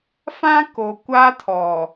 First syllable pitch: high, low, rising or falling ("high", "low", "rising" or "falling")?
high